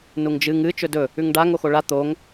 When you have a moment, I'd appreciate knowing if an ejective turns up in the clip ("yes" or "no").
no